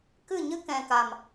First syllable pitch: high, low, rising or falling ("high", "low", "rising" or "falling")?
falling